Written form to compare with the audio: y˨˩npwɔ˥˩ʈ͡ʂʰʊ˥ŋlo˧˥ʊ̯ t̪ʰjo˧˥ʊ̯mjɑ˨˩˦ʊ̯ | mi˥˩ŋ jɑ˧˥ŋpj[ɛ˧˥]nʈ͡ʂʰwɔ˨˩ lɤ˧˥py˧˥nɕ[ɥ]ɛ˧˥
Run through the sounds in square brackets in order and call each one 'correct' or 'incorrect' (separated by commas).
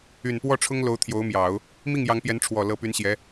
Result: correct, incorrect